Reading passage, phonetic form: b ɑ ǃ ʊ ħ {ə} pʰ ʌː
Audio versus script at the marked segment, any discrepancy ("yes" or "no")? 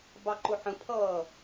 yes